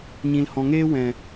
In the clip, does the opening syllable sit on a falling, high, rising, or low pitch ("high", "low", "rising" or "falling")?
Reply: low